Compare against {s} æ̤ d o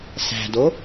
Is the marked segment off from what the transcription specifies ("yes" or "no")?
no